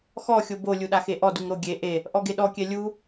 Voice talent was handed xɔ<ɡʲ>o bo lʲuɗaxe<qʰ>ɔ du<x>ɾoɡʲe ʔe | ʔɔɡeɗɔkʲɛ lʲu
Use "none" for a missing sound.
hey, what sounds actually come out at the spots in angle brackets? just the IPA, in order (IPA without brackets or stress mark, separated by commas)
xʲ, ʔ, ŋ